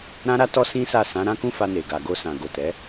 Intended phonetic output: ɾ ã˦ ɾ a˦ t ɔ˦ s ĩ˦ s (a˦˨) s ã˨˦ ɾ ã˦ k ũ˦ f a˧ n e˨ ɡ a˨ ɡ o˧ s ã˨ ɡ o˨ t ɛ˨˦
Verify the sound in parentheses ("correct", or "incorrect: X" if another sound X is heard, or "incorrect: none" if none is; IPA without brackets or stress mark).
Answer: correct